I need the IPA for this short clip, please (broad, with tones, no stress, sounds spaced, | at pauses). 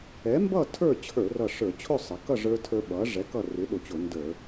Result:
ɛ˩˥ m b ʌ˥˨ tʰ ə˞˥˨ t͡ɕʰ ə˞˧˩˧ r ʌ˧˩ ʂ ə˞˧˩˧ t͡ɕʰ ʊ˥˨ sˤ ɪ˩˧ k ʌ˥˨ ʐ ə˞˦ tʰ ə˞˦ ɓ ʌ˩˥ ʐ ɛ˩˥ k ʌ˥˨ r ɪ˩˥ ɗ ʊ˧˩˧ t͡ɕ ʊ˧˩˧ n d ə˞˧˩˧